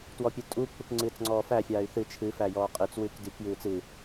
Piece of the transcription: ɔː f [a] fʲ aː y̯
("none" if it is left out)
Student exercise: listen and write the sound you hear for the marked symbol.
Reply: æ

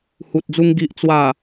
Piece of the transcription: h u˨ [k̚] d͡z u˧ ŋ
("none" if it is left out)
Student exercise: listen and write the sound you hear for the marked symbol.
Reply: t̚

